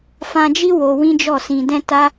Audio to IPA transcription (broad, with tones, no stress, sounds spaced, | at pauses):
f ã˧ d͡ʒ i˦ w o˧ w ĩ˦ d͡ʒ ɔ˦˨ s ĩ˧ d ɛ̃˦ t a˦